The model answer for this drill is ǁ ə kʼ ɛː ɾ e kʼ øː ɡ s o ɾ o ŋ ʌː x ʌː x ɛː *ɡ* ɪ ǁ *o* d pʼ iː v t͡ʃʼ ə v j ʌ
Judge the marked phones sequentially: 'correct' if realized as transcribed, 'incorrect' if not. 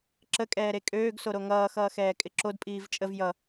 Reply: incorrect: kʼ, correct

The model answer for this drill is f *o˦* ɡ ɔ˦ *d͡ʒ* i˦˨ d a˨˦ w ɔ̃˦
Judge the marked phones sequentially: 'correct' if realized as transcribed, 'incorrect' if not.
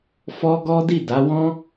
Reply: incorrect: ɔ˦, incorrect: d

